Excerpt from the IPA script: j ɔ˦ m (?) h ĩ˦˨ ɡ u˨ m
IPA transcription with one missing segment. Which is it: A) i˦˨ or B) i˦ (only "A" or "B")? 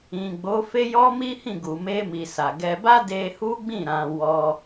B